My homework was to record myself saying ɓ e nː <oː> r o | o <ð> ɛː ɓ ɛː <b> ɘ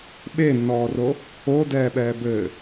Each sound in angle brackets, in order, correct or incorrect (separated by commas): incorrect, incorrect, correct